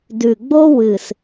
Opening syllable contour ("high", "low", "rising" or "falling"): low